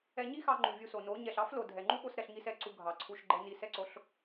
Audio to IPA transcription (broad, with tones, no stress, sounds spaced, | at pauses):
ɛ˧ ɲ i˦ x ɑ˧ ŋ͡ǃ u˨ vʲ u˧ s o˨ n o˨˦ ɲ ɛ˨ ɬ ɑ˦ f l o˨ dʱ ɛ˨ ŋ͡ǃ u˦ ɓ o˧ s ɾ ɛ˧ ɬ ŋ i˦ s ɛ˦˨ ǀ u˧ ɡʱ ɑ˨ ǀʰ u˧ ʃ ɡ͡ǃ ɛ˧ n i˧ s ɛ˧ ǀ o˨˦ ɬ